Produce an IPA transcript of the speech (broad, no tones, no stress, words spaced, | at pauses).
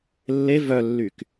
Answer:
lːe vœlːyk